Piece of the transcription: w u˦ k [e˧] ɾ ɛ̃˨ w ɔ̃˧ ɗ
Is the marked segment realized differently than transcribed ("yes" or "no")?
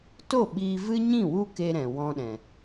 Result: no